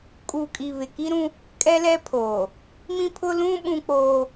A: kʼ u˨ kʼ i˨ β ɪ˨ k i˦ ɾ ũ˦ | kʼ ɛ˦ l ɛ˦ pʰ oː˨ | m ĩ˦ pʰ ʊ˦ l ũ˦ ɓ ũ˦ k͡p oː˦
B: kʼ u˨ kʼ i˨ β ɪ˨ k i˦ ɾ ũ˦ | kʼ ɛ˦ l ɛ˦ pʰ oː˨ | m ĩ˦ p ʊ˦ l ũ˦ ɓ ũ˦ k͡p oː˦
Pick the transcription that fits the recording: A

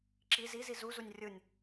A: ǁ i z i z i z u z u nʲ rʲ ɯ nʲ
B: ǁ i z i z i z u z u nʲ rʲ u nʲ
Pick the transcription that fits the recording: A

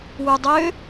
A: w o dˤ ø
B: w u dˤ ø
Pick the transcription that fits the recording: B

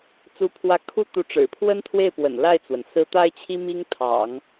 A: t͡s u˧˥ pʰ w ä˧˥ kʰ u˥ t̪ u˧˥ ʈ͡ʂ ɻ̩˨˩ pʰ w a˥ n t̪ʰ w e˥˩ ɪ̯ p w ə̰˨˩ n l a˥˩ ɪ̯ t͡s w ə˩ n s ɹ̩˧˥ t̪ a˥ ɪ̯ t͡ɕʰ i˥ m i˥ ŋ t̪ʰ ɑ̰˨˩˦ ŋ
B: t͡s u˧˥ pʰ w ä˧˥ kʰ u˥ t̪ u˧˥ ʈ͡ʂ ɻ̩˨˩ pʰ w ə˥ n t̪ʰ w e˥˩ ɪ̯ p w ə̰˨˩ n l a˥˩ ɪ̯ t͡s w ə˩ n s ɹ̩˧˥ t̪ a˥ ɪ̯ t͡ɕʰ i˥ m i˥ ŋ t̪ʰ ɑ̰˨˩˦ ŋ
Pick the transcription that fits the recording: B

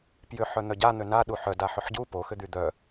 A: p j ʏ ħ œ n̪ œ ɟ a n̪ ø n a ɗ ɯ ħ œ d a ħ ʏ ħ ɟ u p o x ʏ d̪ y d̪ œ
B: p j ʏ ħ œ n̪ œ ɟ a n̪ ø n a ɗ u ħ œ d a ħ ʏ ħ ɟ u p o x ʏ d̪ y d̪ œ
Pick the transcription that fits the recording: B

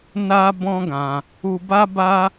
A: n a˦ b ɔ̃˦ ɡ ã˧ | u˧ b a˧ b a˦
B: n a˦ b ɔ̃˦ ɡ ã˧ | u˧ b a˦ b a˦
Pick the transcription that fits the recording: B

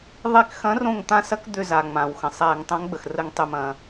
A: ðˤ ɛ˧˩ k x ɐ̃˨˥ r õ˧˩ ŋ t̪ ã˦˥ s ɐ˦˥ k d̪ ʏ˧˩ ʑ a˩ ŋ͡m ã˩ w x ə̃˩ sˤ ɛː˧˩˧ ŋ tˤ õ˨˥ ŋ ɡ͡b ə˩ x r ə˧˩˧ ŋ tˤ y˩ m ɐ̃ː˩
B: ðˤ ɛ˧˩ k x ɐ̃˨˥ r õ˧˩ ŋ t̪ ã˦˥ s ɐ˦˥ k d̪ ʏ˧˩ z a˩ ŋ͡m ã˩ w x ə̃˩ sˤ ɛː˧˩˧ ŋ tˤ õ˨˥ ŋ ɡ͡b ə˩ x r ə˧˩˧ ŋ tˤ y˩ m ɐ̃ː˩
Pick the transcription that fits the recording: B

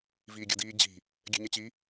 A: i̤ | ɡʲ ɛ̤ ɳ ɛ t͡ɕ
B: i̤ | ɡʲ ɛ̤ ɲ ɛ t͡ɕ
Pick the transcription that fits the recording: B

